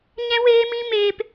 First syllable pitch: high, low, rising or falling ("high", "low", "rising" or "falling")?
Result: high